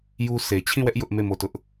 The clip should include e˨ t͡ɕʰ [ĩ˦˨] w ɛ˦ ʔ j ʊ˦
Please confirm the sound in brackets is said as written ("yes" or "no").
yes